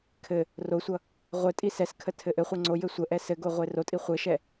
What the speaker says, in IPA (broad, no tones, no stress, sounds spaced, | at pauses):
kʰ ɘ | r o sʷ ʌ | ʁʷ ɘ tʼ i s ɛ s kʰ ə tʰ ɘ ʔ ɘ χʷ e ŋ͡ǀ o j ɘ sʷ ə ʔ ɛ s ɘ ɡ o ʁʷ e r o tʼ i χʷ ɘ ʃ ɛ